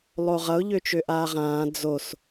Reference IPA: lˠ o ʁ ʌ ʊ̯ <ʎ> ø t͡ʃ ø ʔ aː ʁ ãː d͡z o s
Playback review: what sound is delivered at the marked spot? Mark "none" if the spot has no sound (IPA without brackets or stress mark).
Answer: ʎ